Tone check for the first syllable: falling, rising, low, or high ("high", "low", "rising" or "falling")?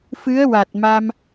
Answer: rising